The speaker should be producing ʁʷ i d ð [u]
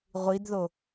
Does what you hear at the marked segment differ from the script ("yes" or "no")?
yes